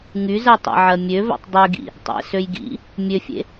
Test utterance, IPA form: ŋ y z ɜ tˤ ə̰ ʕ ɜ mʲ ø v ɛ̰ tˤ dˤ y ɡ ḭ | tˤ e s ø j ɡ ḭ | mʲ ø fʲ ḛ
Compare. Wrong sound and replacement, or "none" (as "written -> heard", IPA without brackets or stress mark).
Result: e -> ḛ